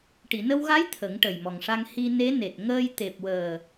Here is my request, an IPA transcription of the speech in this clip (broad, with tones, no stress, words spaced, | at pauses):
ʈi˨˩˨nə˧wɣa˧˥j t̪ʰə˨˩˦ŋ ʈə˨˩jmɔ˨˩ŋʂa˧ŋ hi˧ne˧˥ne˨˩t̚ ŋəː˧jt̪e˨˩p̚wəː˨˩